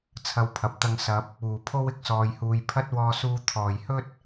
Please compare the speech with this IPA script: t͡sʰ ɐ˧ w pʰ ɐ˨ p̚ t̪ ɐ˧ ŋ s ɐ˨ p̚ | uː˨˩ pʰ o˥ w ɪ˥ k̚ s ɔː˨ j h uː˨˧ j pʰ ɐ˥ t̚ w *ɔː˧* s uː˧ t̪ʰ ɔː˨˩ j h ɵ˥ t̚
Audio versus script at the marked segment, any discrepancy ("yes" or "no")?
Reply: no